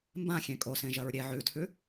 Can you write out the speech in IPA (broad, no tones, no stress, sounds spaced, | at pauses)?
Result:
m b ã xʲ ẽ kʼ o s ẽ ʒ ɐ ɹ ɾʲ e ʕ ʉ tʰ ʉ